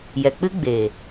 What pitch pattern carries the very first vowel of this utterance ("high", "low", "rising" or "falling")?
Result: low